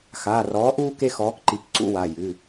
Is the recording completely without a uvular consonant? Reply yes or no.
yes